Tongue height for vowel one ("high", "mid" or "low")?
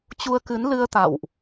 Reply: high